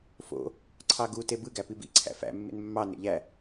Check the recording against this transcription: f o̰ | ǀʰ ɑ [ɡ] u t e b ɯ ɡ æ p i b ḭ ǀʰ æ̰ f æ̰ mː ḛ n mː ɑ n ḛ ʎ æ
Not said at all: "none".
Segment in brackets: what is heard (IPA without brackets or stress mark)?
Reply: ɡ